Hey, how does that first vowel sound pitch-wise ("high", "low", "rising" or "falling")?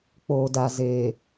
low